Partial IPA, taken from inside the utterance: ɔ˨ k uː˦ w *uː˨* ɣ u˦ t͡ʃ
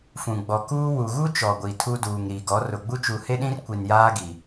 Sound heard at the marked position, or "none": u˨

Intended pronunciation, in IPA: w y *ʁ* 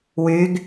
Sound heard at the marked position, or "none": ɡ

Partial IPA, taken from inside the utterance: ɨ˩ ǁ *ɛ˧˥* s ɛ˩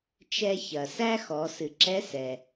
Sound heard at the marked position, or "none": ɛ˧˥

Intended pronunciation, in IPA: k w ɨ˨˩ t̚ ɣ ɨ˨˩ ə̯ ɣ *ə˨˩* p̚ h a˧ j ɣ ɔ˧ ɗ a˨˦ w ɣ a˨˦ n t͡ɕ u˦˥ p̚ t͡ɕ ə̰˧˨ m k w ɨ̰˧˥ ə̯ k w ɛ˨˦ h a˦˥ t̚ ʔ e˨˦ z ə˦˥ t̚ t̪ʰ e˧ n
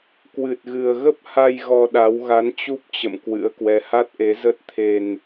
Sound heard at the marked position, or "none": ə˦˥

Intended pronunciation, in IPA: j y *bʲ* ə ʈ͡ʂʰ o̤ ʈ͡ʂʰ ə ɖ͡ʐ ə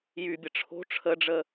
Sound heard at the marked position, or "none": bʲ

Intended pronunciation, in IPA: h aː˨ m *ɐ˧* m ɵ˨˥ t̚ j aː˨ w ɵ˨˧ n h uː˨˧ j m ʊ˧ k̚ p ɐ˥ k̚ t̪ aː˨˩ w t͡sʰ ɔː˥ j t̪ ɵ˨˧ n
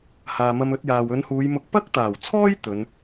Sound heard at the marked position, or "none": ɐ˧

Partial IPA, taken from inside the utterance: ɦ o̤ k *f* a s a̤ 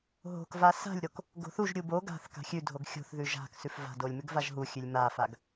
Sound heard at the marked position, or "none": v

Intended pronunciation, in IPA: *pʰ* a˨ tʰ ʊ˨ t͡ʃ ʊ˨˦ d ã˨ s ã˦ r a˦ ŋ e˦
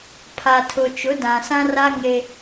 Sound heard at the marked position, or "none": pʰ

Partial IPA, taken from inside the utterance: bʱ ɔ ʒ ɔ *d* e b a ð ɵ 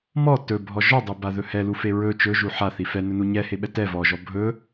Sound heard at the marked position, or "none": dˤ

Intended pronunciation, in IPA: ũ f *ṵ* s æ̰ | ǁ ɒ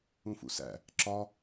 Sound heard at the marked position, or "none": ṵ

